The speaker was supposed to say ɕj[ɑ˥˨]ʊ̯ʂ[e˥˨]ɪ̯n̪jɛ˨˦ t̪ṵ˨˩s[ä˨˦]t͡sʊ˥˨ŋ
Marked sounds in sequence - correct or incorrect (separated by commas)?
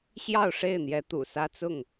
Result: correct, correct, incorrect